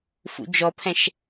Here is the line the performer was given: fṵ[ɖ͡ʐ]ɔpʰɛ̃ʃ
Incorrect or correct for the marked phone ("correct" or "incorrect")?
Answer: incorrect